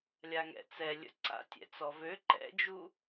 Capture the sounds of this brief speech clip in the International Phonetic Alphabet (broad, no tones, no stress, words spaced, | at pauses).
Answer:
lʲaŋɛ̰t͡sɛ lʲə̰ǀa̰tʲɛ̰ t͡sɔvø ǃɛ̰d͡ʒu